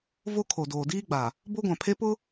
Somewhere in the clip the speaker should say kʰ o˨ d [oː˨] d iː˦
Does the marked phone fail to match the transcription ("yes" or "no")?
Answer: no